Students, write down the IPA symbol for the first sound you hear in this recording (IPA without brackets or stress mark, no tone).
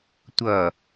tʷ